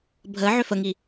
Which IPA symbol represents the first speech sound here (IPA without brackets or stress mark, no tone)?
bʱ